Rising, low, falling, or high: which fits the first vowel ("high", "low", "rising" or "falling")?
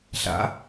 rising